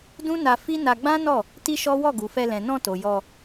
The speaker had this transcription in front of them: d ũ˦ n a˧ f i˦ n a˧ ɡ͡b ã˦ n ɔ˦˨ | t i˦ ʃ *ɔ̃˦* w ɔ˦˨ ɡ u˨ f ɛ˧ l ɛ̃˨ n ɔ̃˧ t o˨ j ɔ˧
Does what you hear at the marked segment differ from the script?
yes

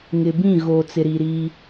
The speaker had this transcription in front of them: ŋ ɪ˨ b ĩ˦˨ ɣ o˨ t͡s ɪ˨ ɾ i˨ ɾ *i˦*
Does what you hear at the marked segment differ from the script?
no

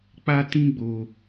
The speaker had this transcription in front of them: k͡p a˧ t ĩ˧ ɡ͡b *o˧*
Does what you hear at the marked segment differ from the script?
no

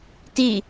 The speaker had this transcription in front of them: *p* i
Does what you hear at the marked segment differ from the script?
yes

